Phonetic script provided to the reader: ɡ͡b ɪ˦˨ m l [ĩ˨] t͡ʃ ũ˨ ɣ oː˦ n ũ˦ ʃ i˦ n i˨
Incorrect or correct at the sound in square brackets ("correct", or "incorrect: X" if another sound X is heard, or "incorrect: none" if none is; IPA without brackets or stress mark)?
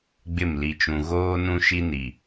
incorrect: i˨